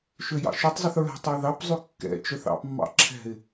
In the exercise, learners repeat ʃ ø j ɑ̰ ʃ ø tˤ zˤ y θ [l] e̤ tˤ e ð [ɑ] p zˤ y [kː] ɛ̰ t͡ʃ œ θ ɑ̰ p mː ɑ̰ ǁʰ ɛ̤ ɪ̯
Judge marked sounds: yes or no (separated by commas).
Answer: no, yes, yes